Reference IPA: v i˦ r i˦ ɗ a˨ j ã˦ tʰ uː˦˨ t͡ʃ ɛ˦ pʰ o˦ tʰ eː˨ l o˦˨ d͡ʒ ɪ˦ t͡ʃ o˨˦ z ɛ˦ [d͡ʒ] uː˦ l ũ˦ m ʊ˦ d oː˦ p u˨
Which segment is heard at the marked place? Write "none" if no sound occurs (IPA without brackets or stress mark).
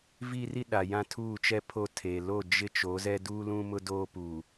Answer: d